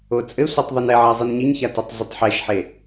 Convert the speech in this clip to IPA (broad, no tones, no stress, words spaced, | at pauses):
ot͡sʼɘsʷetˤ ðˤunɛʕa zˤinɲiɲça tɔtˤzɨtˤħɛʃħe